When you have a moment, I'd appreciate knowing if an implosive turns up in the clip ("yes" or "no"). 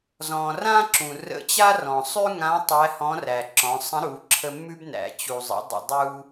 no